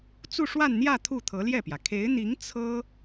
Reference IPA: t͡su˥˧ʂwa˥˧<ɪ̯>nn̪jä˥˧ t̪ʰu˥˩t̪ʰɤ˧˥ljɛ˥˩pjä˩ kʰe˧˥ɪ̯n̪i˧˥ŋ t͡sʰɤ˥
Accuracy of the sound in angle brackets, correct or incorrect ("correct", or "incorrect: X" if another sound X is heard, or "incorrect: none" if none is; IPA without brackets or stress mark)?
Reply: incorrect: none